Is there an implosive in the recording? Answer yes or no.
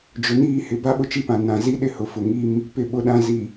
yes